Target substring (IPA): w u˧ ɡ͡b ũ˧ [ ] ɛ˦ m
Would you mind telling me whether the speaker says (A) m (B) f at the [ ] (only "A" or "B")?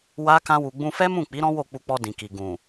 B